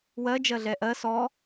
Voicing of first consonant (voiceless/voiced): voiced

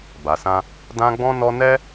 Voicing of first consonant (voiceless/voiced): voiced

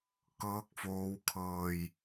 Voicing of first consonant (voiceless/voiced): voiceless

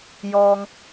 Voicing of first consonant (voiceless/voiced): voiced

